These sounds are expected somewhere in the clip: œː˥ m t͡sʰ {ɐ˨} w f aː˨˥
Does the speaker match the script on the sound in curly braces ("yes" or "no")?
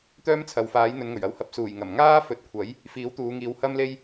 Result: yes